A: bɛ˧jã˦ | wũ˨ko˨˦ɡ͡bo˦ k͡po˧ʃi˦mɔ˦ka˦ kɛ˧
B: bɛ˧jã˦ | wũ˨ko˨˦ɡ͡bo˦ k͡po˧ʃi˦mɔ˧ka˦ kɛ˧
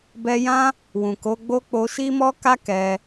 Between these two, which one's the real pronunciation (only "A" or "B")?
A